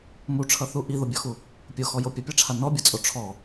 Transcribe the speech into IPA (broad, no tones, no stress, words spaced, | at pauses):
muʈ͡ʂʰʌθu ʔiðobʲɔxu | pʲoxɔjo pʲʌpʲaʈ͡ʂʰa nɔbʲʌt͡sʼo ʈ͡ʂʰɔ